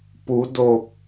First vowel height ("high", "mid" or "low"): high